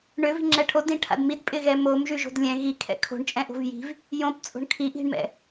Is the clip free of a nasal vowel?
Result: no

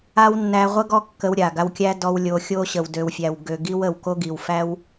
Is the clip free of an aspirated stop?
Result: yes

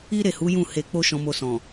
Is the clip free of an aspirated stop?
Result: yes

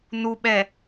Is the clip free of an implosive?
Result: no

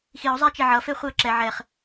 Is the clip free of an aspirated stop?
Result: yes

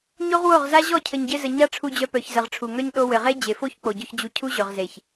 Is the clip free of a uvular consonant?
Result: no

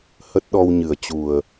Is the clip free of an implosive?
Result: no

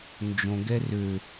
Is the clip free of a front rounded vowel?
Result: no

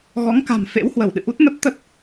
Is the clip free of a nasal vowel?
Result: yes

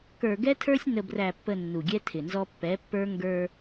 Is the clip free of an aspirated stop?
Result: no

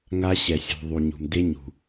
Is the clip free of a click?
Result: yes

